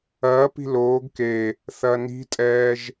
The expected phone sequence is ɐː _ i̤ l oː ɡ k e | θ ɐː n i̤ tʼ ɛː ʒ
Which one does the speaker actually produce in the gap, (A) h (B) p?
B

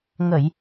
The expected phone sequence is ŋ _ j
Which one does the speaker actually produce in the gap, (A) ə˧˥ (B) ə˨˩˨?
B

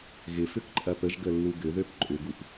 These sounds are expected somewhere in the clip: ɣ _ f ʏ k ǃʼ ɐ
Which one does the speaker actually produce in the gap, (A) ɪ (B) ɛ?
A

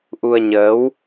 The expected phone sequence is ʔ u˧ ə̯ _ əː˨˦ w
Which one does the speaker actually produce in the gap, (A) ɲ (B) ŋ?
A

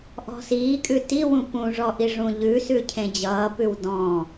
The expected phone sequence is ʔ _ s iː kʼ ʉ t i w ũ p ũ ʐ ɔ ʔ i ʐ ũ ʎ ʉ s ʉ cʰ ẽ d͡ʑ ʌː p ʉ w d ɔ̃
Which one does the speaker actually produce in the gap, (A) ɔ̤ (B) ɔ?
A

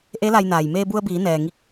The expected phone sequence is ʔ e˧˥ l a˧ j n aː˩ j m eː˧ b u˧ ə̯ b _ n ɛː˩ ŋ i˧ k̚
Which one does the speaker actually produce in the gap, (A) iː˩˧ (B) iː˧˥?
A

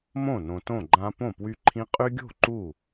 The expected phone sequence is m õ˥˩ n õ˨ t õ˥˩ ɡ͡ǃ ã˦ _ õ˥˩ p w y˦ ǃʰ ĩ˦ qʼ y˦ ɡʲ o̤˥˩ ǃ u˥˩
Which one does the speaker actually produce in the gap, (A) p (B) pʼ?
A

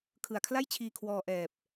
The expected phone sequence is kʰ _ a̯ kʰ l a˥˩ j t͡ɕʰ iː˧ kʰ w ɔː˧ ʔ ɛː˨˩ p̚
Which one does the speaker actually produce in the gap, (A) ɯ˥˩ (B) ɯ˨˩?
B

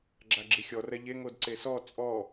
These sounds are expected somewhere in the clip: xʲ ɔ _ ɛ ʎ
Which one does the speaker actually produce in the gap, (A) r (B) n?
A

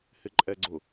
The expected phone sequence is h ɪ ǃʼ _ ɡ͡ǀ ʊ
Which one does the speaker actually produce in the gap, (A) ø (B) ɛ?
B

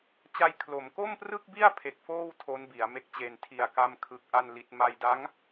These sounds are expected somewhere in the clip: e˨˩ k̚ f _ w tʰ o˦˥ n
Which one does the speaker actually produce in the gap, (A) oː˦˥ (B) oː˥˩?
B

